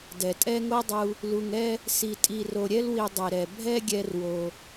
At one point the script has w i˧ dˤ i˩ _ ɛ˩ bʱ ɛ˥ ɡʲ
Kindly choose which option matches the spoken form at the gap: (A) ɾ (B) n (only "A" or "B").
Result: A